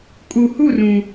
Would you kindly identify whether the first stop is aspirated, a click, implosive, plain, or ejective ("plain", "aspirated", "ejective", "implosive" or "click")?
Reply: ejective